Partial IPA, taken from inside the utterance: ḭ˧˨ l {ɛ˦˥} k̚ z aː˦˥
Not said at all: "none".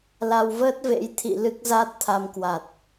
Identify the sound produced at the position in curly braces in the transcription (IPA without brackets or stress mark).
ɨ˦˥